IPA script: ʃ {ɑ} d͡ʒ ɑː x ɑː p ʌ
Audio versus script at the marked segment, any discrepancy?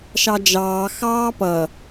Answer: no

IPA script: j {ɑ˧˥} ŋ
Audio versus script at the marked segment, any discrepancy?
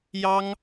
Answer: yes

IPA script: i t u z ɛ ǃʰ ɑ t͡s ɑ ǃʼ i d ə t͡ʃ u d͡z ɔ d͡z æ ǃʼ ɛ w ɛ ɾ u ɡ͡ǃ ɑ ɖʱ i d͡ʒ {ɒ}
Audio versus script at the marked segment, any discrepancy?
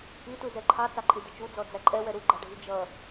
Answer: yes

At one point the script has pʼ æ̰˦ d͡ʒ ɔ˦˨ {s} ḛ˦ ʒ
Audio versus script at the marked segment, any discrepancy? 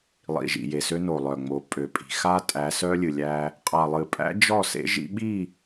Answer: no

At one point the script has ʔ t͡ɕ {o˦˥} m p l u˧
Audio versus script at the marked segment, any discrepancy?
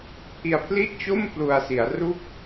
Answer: yes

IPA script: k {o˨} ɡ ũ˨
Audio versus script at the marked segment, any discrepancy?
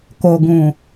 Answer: no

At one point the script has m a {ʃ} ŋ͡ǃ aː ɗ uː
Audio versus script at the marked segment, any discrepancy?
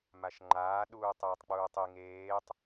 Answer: no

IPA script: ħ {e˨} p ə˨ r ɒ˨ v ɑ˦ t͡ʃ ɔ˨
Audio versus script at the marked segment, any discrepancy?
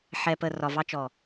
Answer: yes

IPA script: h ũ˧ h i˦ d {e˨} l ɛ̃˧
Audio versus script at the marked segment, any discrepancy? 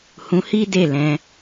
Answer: yes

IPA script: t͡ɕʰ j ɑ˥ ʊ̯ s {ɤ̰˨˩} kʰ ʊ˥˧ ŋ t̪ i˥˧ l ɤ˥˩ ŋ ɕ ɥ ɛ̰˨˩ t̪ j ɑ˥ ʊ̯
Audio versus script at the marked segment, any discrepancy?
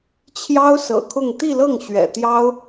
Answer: no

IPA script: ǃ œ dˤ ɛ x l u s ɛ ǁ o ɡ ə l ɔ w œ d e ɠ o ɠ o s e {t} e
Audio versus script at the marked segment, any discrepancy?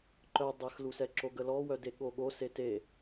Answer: no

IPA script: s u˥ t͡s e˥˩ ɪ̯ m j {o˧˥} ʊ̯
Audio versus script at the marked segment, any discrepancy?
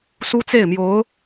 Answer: no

